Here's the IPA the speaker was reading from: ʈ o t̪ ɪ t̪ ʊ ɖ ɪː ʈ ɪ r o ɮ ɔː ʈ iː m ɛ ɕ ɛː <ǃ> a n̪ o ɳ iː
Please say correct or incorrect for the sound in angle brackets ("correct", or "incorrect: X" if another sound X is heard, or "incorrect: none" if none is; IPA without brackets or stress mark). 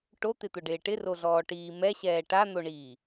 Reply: incorrect: ʈ